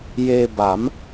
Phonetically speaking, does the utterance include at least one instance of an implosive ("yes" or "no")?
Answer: no